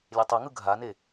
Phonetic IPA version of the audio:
lʲ e tˤ ɛ ŋ ɯ ɡʱ a n e

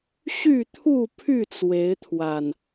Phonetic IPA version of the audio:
ɕ y˥˨ t̪ʰ u˥˨ pʰ y˥˨ t͡s w e˨˦ ɪ̯ t̪ʰ w a˨˩ n

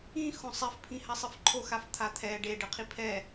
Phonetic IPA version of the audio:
ĩ x õ sˤ ɛ f pʰ ĩ h a sˤ ɯ f ǃʰ o x a f t̪ʰ a t̪ʰ ɛ ɖ e ɖ ɯ qʰ i pʰ ɛ

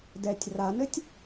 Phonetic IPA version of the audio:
d ɛ tʲ r a n ɘ tʲ

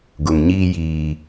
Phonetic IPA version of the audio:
ɡ ʊ˨ ŋ ɲ iː˦ j iː˦

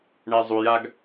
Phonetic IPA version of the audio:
ɳ ɛ zˤ u j a ɡ

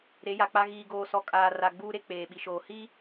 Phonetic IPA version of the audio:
ɾ e˨˦ j a˨ k͡p a˦ ɣ iː˨ ɡ oː˨ s ɔ˨ kʼ aː˨ r a˨ ɡ͡b uː˦ ɾ e˦ k͡p eː˨ ɓ i˨ ʃ oː˨ h i˦

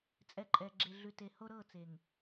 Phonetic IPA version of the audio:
t͡sʼ ɛ˨ ǃʼ ɛ˨ ɡ͡ǁ e˨ ɮ ʉ˨ t e˨ h o˦ ɾ ɤ˦˨ t͡s e˨ ŋ

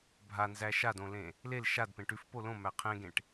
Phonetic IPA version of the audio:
bʱ a n z æ ʃ a d õ l ẽ | l e l ʃ a d p ẽ ʈ ʉ f p o l õ m æ qʰ ẽ ɡ ẽ ʈ

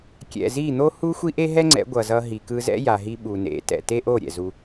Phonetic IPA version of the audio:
kʲ ɛ̰˨ z i˦˨ n̪ o˦ h u˦ xʷ i˦ ʔ e˦ ɦ ɛ˦ ŋ͡ǀ ɛ̰˨˦ ɡʷ ʌ˨ z ʌ˧ ɦ i˨ k ɯ˧ z ɛ̰˦ j a˨ ɦ i˧ ɓ u˨ n ḛ˨˦ t ɛ̰˨ t e˦ ʔ o˦˨ ɾʲ ɛ̰˨ z u˧

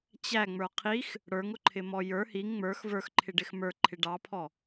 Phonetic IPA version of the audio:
t͡ɕ æ ŋ͡m ə˞ qʰ i x | ɽ ə˞ ŋ ʊ ǃʰ ɪ m ɔ j ə˞ h i ŋ ŋ͡m ə˞ x v ə˞ x ǃʰ ɪ ɖ ɪ x m ə˞ ǃʰ ɪ ɖ ɑ pʰ ɔ

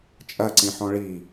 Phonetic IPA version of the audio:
t͡ʃʼ ɐ ǀ ĩ ħ ɔ̃ ɭ i

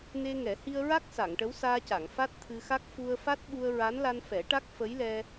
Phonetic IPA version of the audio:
n e˧ ŋ ɛ˨˩˦ h i˧ ə̯ ɹ a˦˥ k̚ s a˨˩˨ ŋ ʈ ə˧˥ w s aː˧ c a˨˩˨ ŋ f a˦˥ t̚ t̪ʰ ɨ˧ x a˦˥ k̚ f u˧ ə̯ f a˦˥ t̚ ɓ u˧ ə̯ ɹ a˧˥ n l a˧ n f ɛ˨˩˦ ʈ a˦˥ k̚ f ə˧˥ j l ɛ˧

